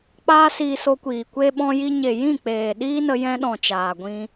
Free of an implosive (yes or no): no